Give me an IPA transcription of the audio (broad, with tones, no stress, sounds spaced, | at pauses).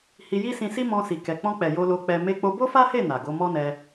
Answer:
h i˧ j i˦ s ĩ˧ s i˦ m ɔ̃˧ s i˨ k ɛ˨ k͡p ɔ̃˧ k͡p ɛ˨ j o˧ l o˧ k͡p ɛ˧ m e˧ k͡p o˧ b o˦ f a˦ h e˦˨ n a˨ ɡ o˨˦ m ɔ˦ n ɛ˧